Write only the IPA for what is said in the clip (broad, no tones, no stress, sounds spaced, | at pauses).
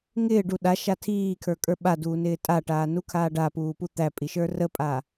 ŋ ɪː ɖ u ɗ a ʃ a tʰ iː kʰ ə˞ kʼ ə˞ ɓ a d uː n ɪː tʼ a ʈ aː n u kʰ aː ɖ a p uː p u t̪ æ pʼ i ʃ ə˞ r ə pʼ a